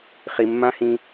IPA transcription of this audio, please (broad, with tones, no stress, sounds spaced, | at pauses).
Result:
χ i˨ mː ã˦ h ĩ˧